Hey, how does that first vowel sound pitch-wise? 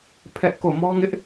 high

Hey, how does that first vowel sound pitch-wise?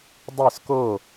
falling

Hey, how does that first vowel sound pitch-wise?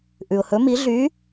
low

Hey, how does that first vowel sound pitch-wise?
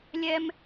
high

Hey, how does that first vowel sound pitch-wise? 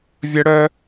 high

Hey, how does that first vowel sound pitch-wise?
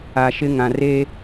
low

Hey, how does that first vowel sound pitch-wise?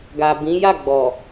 low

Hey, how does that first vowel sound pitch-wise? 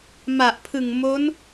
low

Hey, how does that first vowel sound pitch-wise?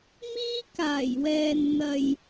high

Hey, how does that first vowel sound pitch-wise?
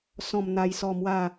low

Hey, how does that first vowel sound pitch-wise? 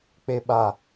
low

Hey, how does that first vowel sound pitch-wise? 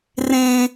high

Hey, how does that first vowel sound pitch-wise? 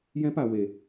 high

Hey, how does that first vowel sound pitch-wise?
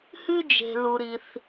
high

